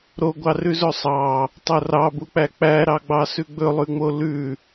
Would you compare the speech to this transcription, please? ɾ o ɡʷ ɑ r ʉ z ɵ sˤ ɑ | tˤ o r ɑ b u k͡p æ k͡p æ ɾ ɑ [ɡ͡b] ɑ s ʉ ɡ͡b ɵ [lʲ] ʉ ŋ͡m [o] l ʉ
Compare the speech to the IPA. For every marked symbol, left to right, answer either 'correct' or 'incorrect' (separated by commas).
correct, incorrect, correct